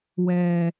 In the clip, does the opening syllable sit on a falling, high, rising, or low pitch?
low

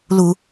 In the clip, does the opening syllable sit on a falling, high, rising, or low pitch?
low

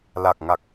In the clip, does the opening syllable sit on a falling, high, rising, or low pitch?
low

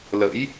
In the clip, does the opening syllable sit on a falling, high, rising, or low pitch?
rising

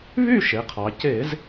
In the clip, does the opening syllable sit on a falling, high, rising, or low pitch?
falling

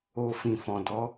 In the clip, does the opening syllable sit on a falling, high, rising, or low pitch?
low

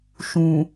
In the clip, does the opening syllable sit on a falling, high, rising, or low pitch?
low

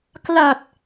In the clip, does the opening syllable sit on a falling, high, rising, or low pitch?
low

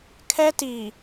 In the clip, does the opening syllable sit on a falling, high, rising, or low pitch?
high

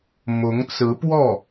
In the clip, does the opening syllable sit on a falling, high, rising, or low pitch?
rising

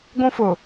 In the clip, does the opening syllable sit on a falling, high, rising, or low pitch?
high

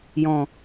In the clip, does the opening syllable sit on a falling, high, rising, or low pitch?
low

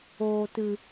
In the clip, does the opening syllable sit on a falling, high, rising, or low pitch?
low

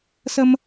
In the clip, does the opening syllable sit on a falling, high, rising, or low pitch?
high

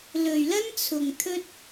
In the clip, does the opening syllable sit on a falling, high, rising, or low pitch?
low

